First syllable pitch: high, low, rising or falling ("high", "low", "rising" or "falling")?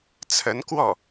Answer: rising